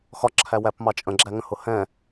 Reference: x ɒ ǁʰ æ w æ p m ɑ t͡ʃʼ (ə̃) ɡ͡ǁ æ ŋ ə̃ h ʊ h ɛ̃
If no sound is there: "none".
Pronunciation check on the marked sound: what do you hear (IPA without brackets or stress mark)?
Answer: ə̃